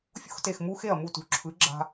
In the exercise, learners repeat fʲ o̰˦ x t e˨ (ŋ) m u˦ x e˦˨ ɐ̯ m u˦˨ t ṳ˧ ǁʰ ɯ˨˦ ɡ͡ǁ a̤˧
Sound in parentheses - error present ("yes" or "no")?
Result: yes